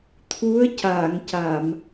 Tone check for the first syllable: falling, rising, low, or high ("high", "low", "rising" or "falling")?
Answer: rising